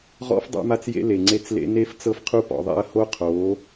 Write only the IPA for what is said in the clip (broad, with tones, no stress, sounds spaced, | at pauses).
ʁ ɔ̰˦ f dˤ a̰˦ m a˦ t͡s j ḛ˦ l e˨ ŋ͡ǀ e˦ t͡s l ḛ˦ n e˦ f t͡s ɤ˦ f qʰ u˦ p ɔ̰˨ ðˤ ḛ˦ ɐ̯ h o˦ qʰ o˨˦